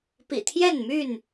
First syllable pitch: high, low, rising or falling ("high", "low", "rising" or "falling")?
low